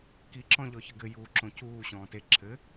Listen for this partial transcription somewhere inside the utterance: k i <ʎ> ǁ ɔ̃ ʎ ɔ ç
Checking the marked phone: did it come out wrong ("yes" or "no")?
yes